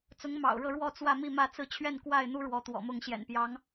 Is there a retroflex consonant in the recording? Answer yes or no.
yes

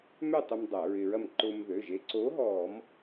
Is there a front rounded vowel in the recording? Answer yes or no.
yes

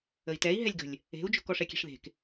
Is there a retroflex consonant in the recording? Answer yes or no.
yes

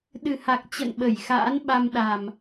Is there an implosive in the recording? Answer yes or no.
yes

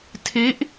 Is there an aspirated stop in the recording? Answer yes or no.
yes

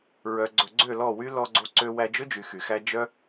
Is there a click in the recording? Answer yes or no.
yes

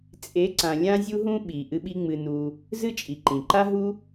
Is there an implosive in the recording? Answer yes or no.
yes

